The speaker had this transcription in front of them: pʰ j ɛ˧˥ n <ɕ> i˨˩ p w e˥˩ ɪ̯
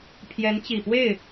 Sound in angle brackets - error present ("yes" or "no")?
yes